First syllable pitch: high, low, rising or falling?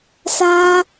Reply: high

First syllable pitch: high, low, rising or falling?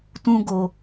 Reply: high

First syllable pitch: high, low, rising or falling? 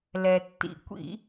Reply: low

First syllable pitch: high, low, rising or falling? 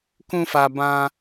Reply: high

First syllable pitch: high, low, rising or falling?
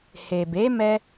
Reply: low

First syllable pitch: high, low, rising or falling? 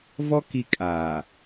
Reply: high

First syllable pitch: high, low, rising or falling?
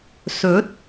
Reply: rising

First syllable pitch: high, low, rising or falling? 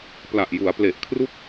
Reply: low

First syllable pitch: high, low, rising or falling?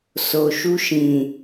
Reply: low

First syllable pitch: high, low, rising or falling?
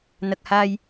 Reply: low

